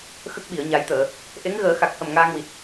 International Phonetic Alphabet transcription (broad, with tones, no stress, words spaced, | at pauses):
xə˦˥k̚ɓi˨˩˨ə̯ɲa˨˩˦jt̪əː˨˩˨ | ʔe˧˥ŋ ɣəː˨˩˦xa˨˩k̚hə˨˩m ŋaː˧ŋwi˨˩t̚